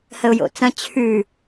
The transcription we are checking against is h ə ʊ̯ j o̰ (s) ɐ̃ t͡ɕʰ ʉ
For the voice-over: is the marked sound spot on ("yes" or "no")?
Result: no